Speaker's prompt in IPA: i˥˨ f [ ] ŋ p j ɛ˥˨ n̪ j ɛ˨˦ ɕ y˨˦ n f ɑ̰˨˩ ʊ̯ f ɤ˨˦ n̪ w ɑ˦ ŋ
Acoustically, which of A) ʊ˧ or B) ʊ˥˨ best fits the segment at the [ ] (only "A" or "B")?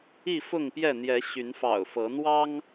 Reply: B